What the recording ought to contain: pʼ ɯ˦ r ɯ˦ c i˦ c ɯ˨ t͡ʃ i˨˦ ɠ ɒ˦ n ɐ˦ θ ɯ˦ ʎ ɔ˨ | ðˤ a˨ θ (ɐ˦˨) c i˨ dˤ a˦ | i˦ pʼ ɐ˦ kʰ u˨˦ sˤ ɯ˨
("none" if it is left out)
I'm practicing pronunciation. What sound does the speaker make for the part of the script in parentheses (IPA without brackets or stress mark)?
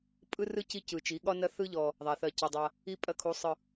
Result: ɐ˦˨